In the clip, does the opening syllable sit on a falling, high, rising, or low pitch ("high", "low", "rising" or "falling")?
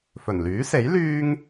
low